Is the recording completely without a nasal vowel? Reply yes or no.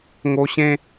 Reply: no